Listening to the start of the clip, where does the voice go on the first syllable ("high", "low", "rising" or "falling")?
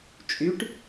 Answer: rising